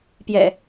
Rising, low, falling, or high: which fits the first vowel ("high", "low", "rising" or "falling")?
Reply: low